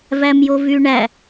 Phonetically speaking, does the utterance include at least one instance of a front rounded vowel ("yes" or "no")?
yes